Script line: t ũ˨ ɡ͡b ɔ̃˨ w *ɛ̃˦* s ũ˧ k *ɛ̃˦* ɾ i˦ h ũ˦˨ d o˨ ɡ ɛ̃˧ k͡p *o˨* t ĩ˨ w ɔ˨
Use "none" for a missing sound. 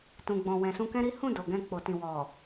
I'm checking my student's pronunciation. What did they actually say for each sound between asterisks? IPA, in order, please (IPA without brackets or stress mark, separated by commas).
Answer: ɛ̃˨, ɛ̃˦, o˨